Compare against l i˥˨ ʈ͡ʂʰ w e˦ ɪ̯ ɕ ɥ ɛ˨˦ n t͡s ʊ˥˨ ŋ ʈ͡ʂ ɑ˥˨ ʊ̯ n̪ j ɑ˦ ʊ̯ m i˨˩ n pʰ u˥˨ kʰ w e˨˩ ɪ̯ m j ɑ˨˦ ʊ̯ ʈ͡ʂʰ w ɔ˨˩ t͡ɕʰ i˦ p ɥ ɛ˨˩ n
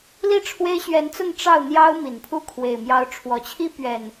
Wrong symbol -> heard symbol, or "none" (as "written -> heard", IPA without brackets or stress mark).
none